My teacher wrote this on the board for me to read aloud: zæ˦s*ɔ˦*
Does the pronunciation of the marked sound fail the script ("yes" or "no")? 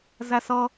yes